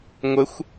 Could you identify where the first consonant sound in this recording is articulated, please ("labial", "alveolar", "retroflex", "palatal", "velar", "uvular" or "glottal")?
velar